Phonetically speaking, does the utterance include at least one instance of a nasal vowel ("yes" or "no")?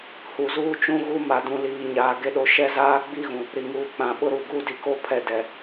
yes